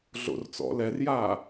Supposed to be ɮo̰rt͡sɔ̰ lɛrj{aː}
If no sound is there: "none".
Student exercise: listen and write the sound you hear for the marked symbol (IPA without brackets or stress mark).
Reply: aː